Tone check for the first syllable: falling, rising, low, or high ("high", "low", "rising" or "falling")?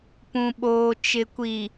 low